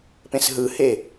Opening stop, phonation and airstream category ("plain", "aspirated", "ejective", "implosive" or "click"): plain